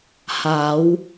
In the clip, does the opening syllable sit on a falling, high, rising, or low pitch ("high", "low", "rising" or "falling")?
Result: rising